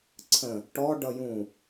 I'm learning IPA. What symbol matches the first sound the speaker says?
ǀʰ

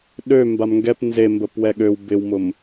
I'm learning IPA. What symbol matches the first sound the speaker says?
ɗ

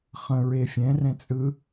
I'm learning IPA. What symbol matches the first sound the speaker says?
χ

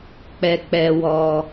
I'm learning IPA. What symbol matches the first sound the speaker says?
k͡p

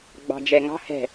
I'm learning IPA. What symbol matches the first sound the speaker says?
ɡ͡b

